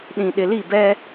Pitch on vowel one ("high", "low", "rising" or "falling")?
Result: low